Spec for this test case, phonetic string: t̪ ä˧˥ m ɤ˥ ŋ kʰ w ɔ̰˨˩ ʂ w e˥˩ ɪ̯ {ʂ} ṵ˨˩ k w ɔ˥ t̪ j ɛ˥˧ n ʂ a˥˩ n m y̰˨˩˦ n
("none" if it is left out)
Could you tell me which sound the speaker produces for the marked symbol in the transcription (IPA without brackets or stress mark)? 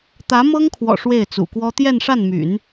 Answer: t͡s